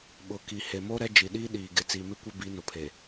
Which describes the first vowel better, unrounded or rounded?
rounded